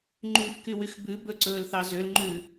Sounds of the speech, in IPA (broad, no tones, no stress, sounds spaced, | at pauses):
ŋ͡ǃ yː f k y w y x b ʉ b ɵ ǀ ɵː l θ ɑ z ø l ŋ͡ǃ ʉ